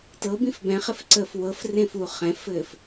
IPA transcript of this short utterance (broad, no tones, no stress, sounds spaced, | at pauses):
t ɤ b ĩ f b ɛ̃ χ ɪ f ǀ əː f w ɤ f r ẽ f u χ ɛ̃ f ɘː f